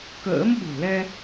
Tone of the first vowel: rising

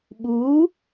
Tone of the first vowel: rising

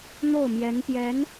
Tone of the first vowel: falling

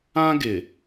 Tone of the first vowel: high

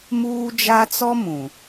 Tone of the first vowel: high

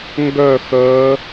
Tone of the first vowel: falling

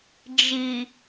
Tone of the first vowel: low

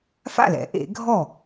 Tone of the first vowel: falling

